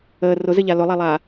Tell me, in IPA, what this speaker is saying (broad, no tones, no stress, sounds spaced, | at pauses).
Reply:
əː r ʊ z ɘ ʎ a l ʊ lˠ æ lˠ aː